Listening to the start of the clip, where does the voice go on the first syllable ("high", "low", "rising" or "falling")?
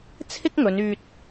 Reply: high